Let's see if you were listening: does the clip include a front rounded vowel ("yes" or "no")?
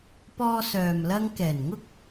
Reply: yes